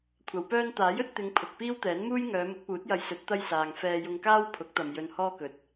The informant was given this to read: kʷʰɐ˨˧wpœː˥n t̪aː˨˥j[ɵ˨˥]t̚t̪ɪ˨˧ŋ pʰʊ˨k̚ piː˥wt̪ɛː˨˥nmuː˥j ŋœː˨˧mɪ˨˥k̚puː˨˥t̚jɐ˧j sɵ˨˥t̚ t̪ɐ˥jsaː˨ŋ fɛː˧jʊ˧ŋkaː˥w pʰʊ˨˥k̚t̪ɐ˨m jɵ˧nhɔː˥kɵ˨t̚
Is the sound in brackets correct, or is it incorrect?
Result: correct